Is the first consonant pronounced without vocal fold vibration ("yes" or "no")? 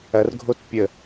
no